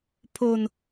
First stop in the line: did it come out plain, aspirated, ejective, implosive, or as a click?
aspirated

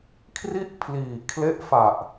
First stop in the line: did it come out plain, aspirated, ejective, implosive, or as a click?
aspirated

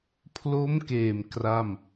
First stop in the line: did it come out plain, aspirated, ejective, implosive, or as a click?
aspirated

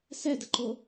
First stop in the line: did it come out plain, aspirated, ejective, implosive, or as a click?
plain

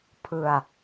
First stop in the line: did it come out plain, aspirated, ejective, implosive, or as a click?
aspirated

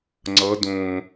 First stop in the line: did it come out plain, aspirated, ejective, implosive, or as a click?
click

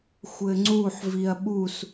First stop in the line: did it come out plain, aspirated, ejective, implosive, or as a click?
click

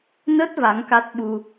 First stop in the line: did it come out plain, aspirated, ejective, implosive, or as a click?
plain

